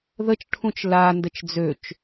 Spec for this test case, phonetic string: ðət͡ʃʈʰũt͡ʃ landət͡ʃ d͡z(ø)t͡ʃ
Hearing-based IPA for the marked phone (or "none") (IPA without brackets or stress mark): ø